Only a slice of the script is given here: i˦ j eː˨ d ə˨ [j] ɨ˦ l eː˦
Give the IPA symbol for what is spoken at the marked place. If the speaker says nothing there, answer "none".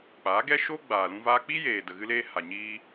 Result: ɣ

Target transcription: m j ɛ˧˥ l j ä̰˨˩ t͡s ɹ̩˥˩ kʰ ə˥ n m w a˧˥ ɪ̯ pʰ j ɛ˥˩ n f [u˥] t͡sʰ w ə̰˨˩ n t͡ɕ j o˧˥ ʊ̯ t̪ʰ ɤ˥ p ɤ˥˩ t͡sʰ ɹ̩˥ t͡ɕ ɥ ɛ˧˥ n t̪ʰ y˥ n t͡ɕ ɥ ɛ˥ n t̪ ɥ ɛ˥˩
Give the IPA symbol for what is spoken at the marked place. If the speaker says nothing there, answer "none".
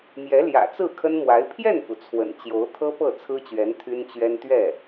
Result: u˩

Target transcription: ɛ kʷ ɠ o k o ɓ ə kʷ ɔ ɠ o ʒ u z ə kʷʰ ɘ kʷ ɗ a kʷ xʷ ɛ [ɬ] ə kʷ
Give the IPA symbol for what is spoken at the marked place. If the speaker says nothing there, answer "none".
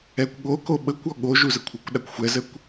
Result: z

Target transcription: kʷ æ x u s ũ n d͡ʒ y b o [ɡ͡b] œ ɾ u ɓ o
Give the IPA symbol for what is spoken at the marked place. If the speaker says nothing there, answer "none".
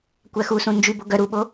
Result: ɡ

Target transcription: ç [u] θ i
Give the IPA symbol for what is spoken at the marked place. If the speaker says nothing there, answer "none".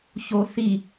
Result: o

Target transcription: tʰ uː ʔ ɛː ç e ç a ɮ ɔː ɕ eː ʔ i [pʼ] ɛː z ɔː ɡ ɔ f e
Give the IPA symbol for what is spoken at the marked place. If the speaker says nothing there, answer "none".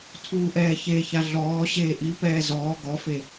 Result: p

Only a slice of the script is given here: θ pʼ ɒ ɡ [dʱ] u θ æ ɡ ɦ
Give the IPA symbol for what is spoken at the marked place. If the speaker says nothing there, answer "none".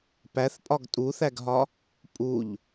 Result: tʼ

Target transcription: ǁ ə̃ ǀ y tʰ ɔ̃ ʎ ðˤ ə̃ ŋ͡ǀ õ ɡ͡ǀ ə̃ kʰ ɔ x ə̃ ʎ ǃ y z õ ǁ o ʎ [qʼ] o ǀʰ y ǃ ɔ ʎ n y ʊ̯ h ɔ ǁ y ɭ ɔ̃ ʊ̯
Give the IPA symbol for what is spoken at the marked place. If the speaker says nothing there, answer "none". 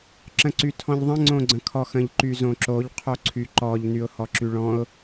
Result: qʰ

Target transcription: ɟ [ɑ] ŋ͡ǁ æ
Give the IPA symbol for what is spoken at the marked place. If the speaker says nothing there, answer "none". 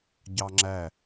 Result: ɑ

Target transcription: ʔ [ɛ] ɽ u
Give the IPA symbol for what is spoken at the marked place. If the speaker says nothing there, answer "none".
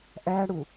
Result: æ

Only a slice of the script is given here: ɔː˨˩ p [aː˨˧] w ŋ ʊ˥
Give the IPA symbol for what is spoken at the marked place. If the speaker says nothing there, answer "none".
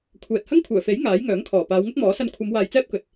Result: aː˨˧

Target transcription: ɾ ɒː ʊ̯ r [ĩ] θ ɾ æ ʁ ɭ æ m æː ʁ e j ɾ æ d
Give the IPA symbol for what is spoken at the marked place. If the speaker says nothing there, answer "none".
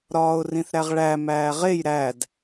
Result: ĩ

